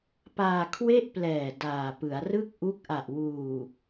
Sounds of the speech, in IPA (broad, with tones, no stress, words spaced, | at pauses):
paː˧kʰwe˥˩ʔplɛː˨˩ daː˨˩ pɯ˩˦a̯rɯ˥˩k̚ʔu˦˥k̚ʔa˨˩ʔ wuː˨˩